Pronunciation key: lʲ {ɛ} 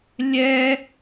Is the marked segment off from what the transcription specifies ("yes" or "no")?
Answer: no